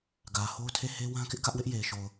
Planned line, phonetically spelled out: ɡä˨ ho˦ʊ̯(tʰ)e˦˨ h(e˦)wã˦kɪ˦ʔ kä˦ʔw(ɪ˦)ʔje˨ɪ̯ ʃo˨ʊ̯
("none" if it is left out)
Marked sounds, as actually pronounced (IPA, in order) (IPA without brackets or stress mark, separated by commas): tʰ, e˦, ɪ˦